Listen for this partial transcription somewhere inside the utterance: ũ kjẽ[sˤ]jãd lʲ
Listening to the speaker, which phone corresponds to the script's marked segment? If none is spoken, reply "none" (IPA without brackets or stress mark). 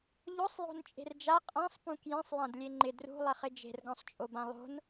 sˤ